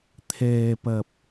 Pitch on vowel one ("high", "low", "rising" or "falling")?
low